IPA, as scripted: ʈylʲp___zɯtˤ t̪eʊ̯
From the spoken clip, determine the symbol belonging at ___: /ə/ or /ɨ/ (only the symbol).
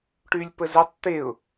ə